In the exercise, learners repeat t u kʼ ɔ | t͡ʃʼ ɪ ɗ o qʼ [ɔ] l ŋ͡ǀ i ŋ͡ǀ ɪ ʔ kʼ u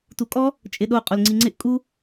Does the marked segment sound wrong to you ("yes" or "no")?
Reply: yes